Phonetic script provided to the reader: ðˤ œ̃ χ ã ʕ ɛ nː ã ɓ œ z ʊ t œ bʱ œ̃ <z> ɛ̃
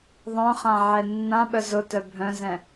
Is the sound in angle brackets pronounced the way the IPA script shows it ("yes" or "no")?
yes